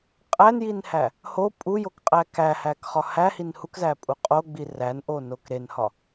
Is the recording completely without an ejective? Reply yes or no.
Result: no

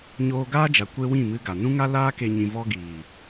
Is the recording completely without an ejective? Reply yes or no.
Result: yes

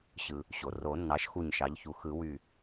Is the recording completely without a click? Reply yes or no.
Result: yes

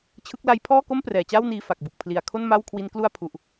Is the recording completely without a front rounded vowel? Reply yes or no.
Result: yes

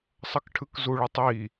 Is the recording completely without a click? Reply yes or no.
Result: yes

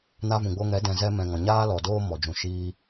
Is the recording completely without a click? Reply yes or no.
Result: yes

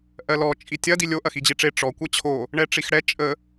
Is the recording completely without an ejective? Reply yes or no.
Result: no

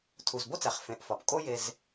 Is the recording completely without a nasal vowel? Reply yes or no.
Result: no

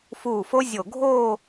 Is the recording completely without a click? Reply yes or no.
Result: yes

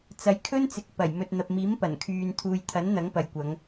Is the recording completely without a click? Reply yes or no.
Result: yes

